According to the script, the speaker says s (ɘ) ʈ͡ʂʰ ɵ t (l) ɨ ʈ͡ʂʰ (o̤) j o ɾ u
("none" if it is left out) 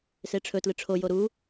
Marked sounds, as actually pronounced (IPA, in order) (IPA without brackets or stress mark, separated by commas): e, l, o